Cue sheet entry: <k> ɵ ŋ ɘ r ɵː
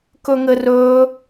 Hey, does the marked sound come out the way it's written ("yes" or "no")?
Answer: yes